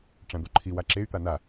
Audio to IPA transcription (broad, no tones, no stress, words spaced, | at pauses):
ʈ͡ʂãd̪oǃʰi waǁey̯ t̪ana